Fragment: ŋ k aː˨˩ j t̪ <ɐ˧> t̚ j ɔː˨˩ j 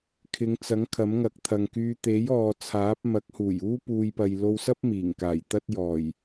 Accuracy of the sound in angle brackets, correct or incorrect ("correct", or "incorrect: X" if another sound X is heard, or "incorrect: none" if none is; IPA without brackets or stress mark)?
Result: incorrect: ɐ˥